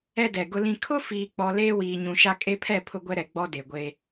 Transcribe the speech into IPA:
ɛ˦dɛ˨ɡʊ˦lĩ˦ kʰʊ˦fiː˨k͡pɔ˨ leː˦wiː˨ɲũ˨ʃa˦ kʼe˦pʰɛ˦˨ pʰʊ˦ɡʷɛ˦ɾɛ˨ ɡ͡bɔ˦de˨ ɡʷe˦

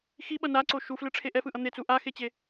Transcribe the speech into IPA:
xiɓʌ naǀo ʃuflɯʈ͡ʂʰe ʔɛfɯʔʌ n̪et͡su ʔaxet͡ɕe

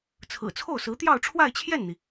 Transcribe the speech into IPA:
t͡sʰɹ̩˨˩t͡sʰo˥˩ʊ̯sɹ̩˧˥t̪jɑ˥˧ʊ̯ ʈ͡ʂʰwa˥˧ɪ̯t͡ɕʰjɛ˥˩nn̪i˩

